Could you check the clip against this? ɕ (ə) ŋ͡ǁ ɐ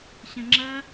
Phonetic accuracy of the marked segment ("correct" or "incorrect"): incorrect